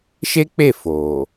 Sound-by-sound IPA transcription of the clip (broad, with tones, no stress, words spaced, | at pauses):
ʃe˦k͡pe˦˨ fo˨